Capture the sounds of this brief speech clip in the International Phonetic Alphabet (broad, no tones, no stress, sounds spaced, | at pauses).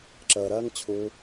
ǁ əː ɾ ɜː ŋ t͡ɕʰ u